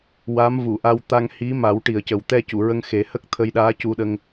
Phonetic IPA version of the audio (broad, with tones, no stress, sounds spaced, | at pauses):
w a˧˥ m v u˨˩˨ ʔ a˧ w t̪ a˧ ŋ h i˧˥ m a˨˩˦ w ʈ i˨˩ ə̯ c ə˨˩ w t̪ ɛ˧ c u˨˩˨ ɹ ə˧ ŋ x e˨˩˦ h ə˦˥ k̚ t̪ʰ ə˧ j ɗ aː˧˥ c u˧ ɗ ə˧ ŋ